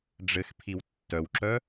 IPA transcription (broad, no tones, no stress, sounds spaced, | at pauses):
ɖ͡ʐ ɘ x pʰ i w tː œ w ǁ œ